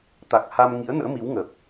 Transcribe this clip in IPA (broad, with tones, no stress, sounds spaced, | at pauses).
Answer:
t̪ a˨˩ k̚ h a˧ m ŋ ḭ˧˥ ə̯ n ə̰ː˧˥ m i˨˦ w ŋ ə˨˩ p̚